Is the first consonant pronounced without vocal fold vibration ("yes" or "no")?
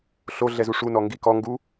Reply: yes